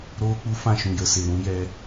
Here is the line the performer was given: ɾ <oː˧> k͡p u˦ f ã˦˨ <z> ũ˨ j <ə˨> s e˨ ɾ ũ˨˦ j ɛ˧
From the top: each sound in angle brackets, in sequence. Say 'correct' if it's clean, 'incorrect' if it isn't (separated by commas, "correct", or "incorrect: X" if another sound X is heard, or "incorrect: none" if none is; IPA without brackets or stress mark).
incorrect: oː˦, incorrect: ʃ, correct